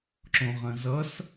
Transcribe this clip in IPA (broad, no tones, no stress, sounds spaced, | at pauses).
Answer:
ǁ õ ʁ ɐ̃ z ʌ s